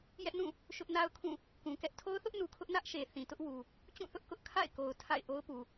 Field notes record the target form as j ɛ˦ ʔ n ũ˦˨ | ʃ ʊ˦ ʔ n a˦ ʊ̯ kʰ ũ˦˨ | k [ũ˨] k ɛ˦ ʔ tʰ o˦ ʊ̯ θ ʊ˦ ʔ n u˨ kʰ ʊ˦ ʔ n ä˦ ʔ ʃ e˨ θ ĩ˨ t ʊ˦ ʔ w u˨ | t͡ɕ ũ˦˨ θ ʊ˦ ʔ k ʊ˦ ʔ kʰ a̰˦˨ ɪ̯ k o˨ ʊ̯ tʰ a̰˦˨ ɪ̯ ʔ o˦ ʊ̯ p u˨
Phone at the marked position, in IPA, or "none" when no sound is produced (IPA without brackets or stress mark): ũ˨